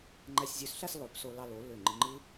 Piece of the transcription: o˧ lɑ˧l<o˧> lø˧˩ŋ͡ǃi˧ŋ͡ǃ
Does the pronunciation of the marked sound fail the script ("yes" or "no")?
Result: yes